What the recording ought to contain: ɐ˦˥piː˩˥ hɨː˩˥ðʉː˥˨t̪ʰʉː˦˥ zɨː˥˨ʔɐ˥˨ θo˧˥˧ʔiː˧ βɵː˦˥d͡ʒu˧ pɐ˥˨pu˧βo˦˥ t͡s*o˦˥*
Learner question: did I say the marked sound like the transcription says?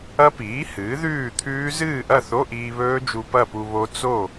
no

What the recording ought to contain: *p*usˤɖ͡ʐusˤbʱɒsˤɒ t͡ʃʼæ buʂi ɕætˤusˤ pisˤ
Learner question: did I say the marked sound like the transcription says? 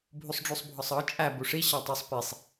no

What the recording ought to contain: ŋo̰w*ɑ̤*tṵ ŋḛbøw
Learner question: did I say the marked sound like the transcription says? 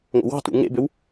yes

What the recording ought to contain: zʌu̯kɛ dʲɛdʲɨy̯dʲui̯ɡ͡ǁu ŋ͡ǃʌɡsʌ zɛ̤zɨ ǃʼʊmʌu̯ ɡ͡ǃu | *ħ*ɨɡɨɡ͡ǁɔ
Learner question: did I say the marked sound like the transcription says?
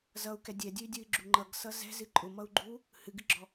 no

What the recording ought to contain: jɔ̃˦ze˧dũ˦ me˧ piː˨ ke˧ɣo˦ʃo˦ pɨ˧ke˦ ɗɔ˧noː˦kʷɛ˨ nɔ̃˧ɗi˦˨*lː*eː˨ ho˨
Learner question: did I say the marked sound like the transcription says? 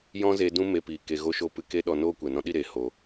no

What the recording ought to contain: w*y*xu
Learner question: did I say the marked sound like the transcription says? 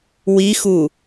no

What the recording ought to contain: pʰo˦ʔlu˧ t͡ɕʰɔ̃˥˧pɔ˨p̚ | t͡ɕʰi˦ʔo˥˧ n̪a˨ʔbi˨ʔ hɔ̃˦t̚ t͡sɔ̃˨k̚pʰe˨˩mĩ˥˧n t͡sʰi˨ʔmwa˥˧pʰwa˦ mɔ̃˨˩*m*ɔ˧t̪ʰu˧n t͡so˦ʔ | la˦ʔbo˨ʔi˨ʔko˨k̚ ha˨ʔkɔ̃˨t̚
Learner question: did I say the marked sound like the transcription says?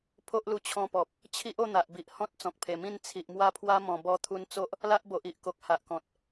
no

